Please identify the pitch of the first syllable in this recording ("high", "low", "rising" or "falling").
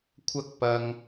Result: high